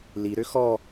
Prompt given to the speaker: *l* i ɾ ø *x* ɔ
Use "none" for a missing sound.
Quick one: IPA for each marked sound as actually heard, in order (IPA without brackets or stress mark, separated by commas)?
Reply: l, x